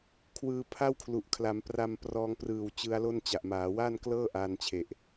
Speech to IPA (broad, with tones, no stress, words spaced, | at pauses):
kʰwɯː˧pʰa˥˩wkʰlu˨˩ʔ kʰla˩˦m pra˧mprɔː˧ŋ prɯː˨˩w t͡ɕɯ˦˥a̯lo˥˩nt͡ɕa˨˩ʔ maː˩˦waː˥˩nklɤː˥˩ ʔaː˧nt͡ɕʰe˨˩ʔ